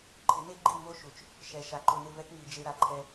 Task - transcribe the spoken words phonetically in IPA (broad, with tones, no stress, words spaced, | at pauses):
ǃʰɪ˨˦ne˦ɡ͡ǃi˦˨ mo˦ ʃu˨t͡ʃ | ʃɛ˨ʃa˨ ǃʊ˨nɪ˦˨vɛ˦kŋi˨ d͡ʒe˦ɾa˨ ǃʰɛ˦